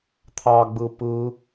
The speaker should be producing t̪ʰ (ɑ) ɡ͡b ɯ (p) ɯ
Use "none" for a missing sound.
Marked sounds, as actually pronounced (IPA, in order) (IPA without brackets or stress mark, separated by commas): ɑ, p